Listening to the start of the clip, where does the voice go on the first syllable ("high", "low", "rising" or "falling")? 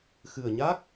low